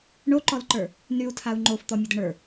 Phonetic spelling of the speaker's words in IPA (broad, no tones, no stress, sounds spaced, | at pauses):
ɳ o ǃ ɔ l ǃ ə˞ | n y u̯ tʰ a u̯ ŋ͡ǃ o f t̪ ɔ mʲ ə d ə ɳ ə˞